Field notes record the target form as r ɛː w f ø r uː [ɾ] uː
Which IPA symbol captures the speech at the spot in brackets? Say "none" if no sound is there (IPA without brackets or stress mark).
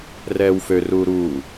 ɾ